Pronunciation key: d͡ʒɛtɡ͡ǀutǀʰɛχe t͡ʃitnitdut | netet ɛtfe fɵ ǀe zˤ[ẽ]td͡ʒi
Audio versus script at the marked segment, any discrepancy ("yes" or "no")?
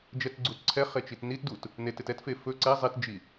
yes